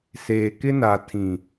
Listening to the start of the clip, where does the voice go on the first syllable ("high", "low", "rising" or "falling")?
low